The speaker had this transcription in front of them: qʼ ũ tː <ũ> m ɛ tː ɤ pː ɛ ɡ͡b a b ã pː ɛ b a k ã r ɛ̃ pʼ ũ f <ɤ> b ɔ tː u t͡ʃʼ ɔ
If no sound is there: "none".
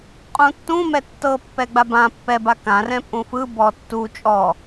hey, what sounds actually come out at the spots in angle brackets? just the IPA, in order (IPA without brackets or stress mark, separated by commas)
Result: ũ, ɯ